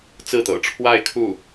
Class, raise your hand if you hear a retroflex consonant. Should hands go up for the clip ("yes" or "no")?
yes